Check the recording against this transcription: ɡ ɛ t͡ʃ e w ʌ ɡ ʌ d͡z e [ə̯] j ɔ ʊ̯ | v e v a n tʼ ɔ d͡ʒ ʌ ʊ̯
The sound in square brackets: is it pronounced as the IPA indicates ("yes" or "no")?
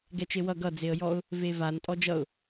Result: yes